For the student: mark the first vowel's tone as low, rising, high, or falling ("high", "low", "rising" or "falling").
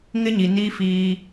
high